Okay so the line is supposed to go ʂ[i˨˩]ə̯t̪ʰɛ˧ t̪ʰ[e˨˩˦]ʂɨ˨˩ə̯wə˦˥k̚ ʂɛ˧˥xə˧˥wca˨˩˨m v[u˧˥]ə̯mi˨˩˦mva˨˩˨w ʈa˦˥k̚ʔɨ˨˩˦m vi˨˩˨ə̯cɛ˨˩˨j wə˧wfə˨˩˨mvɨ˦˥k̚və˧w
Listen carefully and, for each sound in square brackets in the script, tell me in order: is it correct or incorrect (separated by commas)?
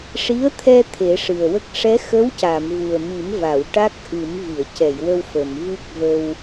incorrect, correct, incorrect